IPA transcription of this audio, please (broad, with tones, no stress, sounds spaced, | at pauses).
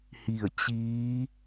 h i˧˩ ə̯ t͡ɕ iː˧˥